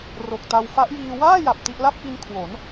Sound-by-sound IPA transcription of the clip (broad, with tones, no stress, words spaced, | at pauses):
ro˨˩k̚ta˧w fa˦˥ʔjiː˧ waː˥˩ja˨˩p̚ ti˥˩ʔ la˥˩p̚ʔi˧n kʰwo˩˦n